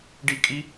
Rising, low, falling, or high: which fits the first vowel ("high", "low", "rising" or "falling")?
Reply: high